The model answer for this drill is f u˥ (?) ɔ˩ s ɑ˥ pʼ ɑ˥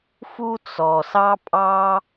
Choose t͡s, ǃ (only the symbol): t͡s